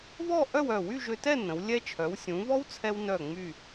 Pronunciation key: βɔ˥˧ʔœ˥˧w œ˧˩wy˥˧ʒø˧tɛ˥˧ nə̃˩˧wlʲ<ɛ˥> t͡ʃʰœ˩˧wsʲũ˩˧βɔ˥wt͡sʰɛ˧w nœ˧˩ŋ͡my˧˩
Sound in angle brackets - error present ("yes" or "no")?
no